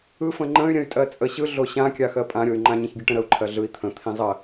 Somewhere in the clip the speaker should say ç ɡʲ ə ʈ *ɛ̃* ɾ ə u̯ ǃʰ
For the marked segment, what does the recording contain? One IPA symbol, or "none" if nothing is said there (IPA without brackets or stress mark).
ə̃